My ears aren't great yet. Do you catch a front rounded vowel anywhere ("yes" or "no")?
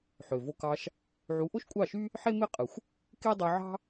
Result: yes